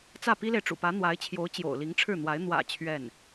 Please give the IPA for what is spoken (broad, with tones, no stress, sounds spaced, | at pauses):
t͡s ä˥˩ p i˥ l e˨ ɪ̯ ʈ͡ʂ ṵ˨˩ p ä˧˥ n̪ w a˧˥ ɪ̯ t͡ɕʰ j o˧˥ ʊ̯ t͡ɕ j o̰˨˩ ʊ̯ l i˧˥ ŋ ʈ͡ʂʰ ɻ̩˥˩ n̪ w a˧˥ ɪ̯ n̪ w ä̰˨˩ t͡ɕʰ ɥ ɛ˥˩ n